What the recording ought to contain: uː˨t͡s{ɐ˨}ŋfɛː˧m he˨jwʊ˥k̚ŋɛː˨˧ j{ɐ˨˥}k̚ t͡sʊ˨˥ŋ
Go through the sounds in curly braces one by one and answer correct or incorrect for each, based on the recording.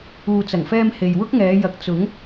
incorrect, correct

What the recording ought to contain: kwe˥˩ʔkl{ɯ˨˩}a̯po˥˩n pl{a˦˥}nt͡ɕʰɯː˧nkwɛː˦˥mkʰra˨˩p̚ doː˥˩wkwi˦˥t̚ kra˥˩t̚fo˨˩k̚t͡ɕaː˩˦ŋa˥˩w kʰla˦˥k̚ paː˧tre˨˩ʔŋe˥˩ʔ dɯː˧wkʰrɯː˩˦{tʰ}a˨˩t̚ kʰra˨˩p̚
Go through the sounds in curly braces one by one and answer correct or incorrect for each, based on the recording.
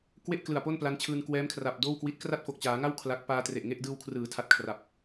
correct, correct, correct

